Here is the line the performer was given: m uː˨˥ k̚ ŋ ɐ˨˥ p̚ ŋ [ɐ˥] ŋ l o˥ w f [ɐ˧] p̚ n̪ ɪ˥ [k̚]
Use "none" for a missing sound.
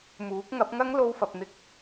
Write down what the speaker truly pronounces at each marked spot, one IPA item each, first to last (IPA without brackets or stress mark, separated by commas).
ɐ˥, ɐ˧, k̚